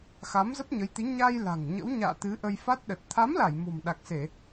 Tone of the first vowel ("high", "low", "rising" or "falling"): rising